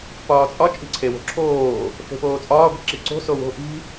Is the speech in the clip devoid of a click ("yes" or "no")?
no